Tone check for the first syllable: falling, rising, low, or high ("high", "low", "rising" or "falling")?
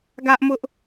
high